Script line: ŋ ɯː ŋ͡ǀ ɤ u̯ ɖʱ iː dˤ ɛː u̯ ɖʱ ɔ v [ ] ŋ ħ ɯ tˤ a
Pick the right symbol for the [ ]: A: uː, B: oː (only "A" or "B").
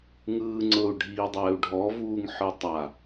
A